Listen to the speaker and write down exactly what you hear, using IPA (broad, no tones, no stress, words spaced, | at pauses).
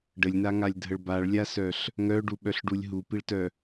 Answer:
ɖəlʲnaŋalʲdʱəɭ baɭlʲasœɬ | ŋœɖuɓœɬɖulʲ ɦupiɭtœ